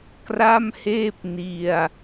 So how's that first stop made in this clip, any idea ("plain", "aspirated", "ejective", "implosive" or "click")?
plain